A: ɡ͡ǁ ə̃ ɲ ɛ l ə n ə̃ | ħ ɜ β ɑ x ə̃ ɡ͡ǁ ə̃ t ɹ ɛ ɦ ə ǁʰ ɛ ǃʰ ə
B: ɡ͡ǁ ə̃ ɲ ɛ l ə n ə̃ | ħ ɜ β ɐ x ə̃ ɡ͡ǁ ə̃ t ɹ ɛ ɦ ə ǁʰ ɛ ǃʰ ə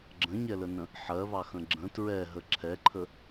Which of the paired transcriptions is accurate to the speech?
A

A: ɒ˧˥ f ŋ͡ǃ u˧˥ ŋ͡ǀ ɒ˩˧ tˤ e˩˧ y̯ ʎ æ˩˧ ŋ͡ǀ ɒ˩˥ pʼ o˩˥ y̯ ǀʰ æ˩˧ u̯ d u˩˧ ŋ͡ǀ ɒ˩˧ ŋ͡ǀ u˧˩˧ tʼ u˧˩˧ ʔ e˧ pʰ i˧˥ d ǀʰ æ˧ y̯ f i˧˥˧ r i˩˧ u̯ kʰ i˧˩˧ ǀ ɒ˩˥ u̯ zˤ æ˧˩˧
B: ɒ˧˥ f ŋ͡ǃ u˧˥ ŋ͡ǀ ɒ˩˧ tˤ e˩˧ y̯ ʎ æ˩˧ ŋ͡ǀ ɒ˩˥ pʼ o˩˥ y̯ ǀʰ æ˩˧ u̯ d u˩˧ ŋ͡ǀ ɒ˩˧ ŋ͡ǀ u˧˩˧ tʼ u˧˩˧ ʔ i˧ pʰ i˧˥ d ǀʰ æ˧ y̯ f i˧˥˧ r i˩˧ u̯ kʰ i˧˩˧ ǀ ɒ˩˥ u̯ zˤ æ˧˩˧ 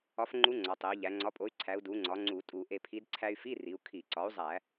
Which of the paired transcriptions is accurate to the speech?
A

